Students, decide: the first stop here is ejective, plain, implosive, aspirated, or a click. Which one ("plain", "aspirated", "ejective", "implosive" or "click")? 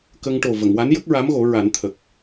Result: plain